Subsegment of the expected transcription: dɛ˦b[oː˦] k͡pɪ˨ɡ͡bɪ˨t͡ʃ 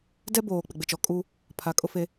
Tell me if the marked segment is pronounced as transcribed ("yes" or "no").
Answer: no